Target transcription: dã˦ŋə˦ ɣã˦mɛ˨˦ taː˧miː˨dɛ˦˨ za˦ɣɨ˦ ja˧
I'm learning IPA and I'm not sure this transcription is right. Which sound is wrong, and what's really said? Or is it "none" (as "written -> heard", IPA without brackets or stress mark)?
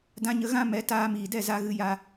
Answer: ŋ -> ɲ